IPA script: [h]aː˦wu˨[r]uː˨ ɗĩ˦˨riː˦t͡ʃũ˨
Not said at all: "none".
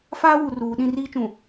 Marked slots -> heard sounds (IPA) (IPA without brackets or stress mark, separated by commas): f, r